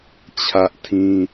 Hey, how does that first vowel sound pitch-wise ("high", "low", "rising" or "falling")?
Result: high